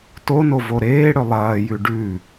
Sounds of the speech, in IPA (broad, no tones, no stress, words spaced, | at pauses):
tono voɾeː ɽɵlˠɐːjʉ ɖʉ